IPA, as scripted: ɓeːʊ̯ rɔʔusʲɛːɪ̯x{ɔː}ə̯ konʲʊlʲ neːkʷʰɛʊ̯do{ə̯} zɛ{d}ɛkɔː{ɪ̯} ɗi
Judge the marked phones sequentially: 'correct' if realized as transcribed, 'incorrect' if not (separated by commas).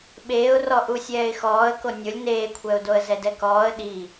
correct, correct, correct, incorrect